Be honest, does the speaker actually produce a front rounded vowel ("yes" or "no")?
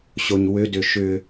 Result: yes